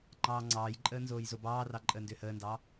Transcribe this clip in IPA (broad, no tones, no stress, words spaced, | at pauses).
ŋ͡ǃɑːŋ͡ǀɑːjǃʼəː nzoːjzobɑːrɑ ǃʼəːndʏːhəːndɑː